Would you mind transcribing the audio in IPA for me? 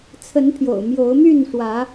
t͡sʰ ə˨˦ n pʰ j o̰˨˩ ʊ̯ m j o˨˦ ʊ̯ m y˥˨ n ʂ w ä˨˦

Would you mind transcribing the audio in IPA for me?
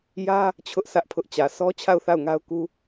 j ä˦ | t͡ɕʰ ʊ˦ ʔ s ä˦ ʔ pʰ ʊ˦ ʔ t͡ɕ ä˨ s ɔ˦ t͡ɕʰ a˦˨ ʊ̯ θ a˦˨ ʊ̯ ŋ a˦ ʊ̯ k u˦

